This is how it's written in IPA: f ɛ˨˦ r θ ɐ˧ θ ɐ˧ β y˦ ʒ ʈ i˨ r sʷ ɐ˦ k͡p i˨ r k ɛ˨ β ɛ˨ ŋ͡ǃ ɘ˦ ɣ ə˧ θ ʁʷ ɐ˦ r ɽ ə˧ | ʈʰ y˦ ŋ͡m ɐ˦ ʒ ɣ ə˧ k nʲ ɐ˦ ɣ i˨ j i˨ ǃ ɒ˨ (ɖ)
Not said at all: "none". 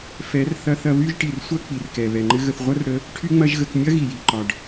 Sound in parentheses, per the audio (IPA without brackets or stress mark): ɖ